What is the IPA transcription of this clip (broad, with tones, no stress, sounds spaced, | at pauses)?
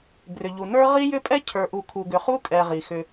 b r ʏ˨ ʎ u˨ n ə˞˦ ʁ i˦ j ʏ˦ pʼ ɛ˦ cʰ ə˞˨ ʔ u˨ kʰ u˨ ɡ ʏ˨ χ u˦ kʼ ɛ˨ ʁ i˨ x ʏ˦